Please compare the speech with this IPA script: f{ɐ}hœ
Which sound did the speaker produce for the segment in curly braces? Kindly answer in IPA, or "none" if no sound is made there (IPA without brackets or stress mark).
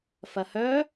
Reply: ɐ